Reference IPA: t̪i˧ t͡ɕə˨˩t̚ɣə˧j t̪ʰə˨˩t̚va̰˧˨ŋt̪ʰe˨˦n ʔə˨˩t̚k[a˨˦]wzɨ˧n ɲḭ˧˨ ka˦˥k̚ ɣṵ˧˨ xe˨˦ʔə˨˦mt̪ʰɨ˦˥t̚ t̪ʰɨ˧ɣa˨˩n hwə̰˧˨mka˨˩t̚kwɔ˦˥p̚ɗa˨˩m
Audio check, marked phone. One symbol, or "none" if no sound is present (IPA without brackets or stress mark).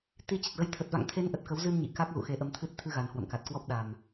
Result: ə˨˦